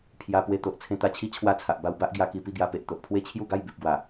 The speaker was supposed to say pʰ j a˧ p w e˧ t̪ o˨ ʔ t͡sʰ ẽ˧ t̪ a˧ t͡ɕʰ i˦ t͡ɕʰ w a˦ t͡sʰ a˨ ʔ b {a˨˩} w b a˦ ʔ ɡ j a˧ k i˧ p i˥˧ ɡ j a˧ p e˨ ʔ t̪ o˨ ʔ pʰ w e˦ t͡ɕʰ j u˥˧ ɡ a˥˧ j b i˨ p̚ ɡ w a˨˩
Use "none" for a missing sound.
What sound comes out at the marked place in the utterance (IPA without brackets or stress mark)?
a˧